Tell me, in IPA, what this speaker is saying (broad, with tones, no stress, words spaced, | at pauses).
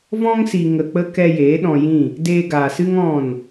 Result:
vɔ̃˦ŋsi˨ ŋə˨k͡pə˧ kɛ˧ jeː˨˦ɗɔ̃˧jĩ˦˨ | deː˧ɡaː˨sɨ˦ŋ ɔ̃˦˨n